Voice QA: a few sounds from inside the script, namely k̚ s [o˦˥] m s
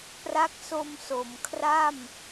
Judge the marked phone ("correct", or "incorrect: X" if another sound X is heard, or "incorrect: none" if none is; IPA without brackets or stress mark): incorrect: o˧